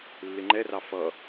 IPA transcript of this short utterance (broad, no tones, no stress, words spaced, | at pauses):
lːɪŋ͡ǃɛrɑ fʌ